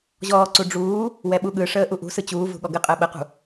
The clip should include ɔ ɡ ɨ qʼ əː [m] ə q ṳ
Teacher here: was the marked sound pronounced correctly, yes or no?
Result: no